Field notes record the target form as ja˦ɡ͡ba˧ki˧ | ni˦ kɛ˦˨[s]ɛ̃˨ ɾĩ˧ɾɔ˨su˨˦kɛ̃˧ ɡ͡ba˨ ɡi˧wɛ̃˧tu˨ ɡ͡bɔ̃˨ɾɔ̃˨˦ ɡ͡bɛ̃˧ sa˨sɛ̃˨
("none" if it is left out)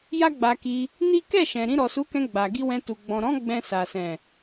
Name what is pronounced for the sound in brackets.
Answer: ʃ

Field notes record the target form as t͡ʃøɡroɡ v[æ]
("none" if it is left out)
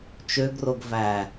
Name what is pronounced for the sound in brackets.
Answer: æ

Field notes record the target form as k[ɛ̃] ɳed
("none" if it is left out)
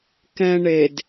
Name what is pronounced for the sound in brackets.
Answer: ɛ̃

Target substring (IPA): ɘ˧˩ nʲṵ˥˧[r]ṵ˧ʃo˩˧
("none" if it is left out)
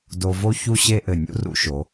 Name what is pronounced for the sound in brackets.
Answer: r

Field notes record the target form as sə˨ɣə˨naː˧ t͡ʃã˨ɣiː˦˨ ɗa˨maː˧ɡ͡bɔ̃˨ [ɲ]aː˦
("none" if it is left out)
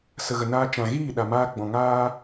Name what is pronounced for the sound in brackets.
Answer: ŋ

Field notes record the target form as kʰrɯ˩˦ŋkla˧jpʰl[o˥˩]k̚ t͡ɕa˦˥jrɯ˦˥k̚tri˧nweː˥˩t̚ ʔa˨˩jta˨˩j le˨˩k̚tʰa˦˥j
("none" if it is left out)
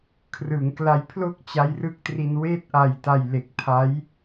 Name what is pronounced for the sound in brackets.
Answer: o˥˩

